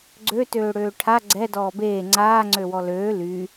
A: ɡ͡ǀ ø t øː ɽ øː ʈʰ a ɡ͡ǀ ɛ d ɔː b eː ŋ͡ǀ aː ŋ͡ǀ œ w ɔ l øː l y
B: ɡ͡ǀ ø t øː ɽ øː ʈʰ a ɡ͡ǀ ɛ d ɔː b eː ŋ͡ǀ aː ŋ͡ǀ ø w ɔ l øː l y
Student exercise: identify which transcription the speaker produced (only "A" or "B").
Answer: B